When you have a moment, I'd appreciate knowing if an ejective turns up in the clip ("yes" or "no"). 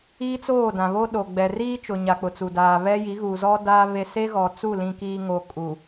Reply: yes